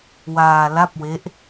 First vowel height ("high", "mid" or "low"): low